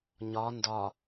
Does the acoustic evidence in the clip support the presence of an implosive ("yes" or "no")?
no